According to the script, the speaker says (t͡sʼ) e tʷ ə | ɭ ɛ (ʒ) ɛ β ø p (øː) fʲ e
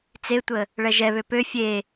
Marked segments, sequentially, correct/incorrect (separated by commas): incorrect, correct, incorrect